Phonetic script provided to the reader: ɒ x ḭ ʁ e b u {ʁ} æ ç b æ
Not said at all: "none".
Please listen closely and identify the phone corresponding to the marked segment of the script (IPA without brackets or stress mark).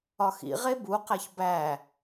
q